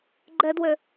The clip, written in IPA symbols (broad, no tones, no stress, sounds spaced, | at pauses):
ɡ͡ǃ ɛ d w ø